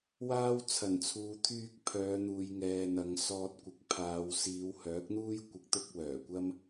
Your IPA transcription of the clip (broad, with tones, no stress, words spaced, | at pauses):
waː˧w t͡sʰɐ˨˩nt͡sʰuː˨t̪ʰyː˧k̚ pʰœː˨˧n̪uː˨jŋɛː˨n̪ɐ˨ŋ sɔː˧t̚ kʷɪ˨˥k̚pʰaː˨˧w siː˨˧whœː˨˥k̚n̪uː˥j kʷɪ˧k̚t̪ʊ˥k̚ wœː˨˩kʷɐ˥m